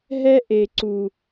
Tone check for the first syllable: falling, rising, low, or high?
high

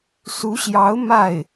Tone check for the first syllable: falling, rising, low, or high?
rising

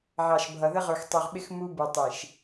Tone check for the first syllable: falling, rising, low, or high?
low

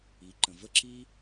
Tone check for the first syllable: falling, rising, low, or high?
rising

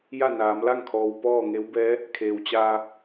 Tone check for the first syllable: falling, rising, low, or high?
falling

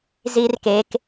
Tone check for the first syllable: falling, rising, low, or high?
high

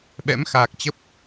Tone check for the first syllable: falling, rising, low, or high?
rising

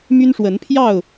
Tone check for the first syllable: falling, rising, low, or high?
high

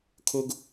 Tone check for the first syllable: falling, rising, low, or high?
high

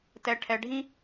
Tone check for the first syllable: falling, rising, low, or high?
falling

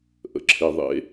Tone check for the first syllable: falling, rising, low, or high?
low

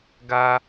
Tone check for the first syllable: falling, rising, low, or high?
high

